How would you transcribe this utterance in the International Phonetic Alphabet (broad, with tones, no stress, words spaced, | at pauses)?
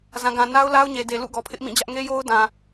zã˨ɡã˨ na˦ʊ̯la˦ʊ̯ɲe˨ de˨lṵ˦˨ ɡɔ˨pʰɪ˦ʔmĩ˦˨d͡ʑä˦ʔ ŋe˦jo˦ʊ̯dã˨